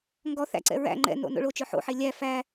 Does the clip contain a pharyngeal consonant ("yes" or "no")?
yes